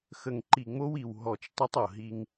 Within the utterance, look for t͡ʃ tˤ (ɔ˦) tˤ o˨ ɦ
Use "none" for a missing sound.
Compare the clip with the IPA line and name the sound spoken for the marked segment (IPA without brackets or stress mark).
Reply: ə˦